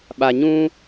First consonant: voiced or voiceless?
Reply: voiced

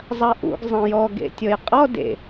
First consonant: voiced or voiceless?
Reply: voiced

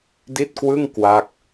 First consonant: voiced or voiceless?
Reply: voiced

